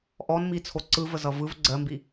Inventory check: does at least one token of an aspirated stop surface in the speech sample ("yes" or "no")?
yes